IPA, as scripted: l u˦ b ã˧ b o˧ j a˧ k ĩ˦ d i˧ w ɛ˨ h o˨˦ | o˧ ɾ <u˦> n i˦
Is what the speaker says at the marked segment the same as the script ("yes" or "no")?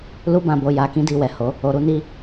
yes